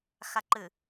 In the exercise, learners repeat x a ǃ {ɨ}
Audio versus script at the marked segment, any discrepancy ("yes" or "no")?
no